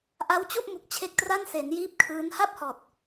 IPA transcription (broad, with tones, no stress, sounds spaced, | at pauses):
ʔ a˦˥ w t͡ɕ u˥˩ ʔ m u˨˩ k̚ t͡ɕʰ e˦˥ k̚ t r a˥˩ n s e˩˦ n j iː˦˥ p̚ kʰ ɯː˦˥ n h a˥˩ p̚ h ɔː˨˩ t̚